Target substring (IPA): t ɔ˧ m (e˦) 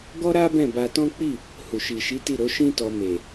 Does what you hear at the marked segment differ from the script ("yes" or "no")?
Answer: yes